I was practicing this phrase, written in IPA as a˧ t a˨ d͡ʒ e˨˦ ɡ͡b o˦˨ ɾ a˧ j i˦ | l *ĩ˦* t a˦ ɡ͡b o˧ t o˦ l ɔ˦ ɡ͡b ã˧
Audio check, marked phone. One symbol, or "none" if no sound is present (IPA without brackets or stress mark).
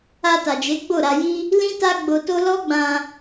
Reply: ĩ˦